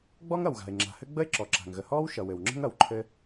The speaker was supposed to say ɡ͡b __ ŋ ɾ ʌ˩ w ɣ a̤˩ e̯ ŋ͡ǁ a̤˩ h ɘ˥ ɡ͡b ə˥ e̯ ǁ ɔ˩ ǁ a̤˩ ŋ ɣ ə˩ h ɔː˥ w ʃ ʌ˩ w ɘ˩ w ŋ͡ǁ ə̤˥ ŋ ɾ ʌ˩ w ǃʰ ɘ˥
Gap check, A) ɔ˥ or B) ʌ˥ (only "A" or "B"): A